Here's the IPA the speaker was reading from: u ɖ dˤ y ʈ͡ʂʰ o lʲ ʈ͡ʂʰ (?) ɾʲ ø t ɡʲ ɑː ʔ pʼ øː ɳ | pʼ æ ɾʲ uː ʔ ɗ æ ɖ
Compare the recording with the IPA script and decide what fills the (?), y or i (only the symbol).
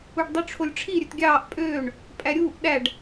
i